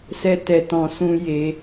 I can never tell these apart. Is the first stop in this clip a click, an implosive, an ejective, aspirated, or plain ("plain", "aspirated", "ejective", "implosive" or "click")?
plain